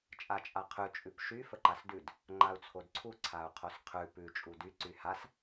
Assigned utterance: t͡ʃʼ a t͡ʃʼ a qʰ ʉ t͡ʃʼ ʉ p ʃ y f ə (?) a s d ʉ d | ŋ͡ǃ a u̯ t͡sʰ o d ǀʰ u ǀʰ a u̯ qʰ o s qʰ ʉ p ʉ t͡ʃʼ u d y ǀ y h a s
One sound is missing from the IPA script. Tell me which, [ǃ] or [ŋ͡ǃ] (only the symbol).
ǃ